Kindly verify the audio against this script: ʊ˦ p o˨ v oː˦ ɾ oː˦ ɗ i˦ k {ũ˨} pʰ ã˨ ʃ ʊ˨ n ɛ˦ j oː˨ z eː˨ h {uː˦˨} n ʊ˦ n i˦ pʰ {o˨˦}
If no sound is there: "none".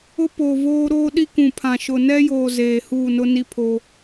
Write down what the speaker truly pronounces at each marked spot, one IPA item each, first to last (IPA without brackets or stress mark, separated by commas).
ũ˨, uː˦˨, o˦